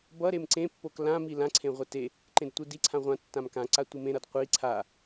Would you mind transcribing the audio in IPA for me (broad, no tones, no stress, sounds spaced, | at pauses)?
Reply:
b ʌ ɾ e m ǀ ẽ pː o k l ã m i l ã ǀʰ ẽ ʁʷ e t e | ǃ ẽ d tʷ ɯ d i ǀʰ ã ʁʷ ã tː ã m k ã ǀ a tʷ ɯ m ẽ ɾ ʌ d qʷ i ǀʰ a